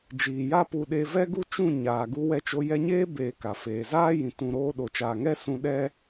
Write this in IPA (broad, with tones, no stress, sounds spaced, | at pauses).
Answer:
d͡ʒ iː˨ j a˦ p u˧ ɗ e˧ v ɛ˦ ɡ u˦ t͡ʃ ũ˦˨ ɲ aː˨ ɡ u˧ w ɛ˧ t͡ʃ o˧ j ɛ˧ ɲ eː˦ b eː˨ k a˨ f eː˨ z aː˦ j ĩ˨ t ũ˨ ɾ oː˧ ɗ o˨ t͡ʃ aː˨ ŋ ɛ˦ s ũ˧ ɗ ɛ˦